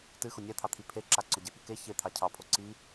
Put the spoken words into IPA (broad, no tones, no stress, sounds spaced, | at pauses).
t ɨ x ʊ nʲ ɛ t̪ʰ ɑ t̪ʰ i pʰ e ǁ a ǀ ʊ ɟ e p ɨ k e ç e t̪ʰ ɑ cʰ ɑ pʰ o ǀ i